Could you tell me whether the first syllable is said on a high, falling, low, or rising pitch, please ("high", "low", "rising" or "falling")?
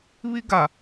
high